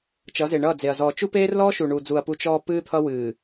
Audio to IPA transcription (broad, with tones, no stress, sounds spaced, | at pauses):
t͡ʃ ʌ˨˦ z e˨ ɳ ʌː˦˨ d͡z e˨ ɐ̯ z ɔː˨ t͡ʃ u˦ p eː˦ r l ɔː˦ ʃ u˨ ɳ uː˨ d͡z u˨ ɐ̯ p u˦ t͡ʃ ɔː˦ p ɨː˦ t̪ʰ ʌ˦ w ɨː˨